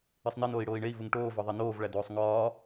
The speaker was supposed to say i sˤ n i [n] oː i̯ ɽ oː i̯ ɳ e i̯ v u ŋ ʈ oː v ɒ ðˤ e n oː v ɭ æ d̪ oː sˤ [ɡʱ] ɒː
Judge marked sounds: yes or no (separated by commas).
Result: yes, no